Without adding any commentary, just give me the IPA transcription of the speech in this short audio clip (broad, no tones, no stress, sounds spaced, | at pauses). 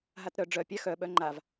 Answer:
ɦ a t ɾ œ ɖ͡ʐ œ pʲ a x œ ɓ œ ŋ͡ǃ a v